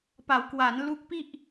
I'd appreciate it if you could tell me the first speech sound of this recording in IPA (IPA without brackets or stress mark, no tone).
p